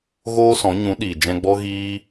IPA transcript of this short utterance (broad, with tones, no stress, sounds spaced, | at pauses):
ɣ oː˧ s ɔ̃˨˦ ɲ ũ˨˦ ɗ iː˨ d͡ʒ ɛ̃˧ ɡ͡b ɔ˦ ɣ iː˦